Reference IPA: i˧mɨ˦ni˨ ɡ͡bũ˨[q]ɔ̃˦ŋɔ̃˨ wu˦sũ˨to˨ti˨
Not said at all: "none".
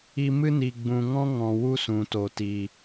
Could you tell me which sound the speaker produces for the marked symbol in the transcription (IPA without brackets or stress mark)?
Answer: ŋ